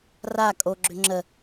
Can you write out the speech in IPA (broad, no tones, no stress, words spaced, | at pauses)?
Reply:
ra kʼoɡ͡ǁʏ ŋ͡ǁə